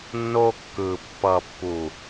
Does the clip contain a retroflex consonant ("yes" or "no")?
no